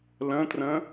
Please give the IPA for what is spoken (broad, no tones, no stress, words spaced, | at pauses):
lə̃trə̃